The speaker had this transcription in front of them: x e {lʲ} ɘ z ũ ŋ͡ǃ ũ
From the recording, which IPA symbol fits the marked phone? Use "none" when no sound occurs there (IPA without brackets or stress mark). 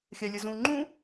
lʲ